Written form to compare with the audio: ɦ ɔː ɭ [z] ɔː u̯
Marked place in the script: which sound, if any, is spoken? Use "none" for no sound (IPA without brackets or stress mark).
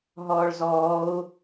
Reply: z